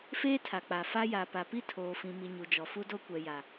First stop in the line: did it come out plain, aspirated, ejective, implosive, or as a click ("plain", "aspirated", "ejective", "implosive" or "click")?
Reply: aspirated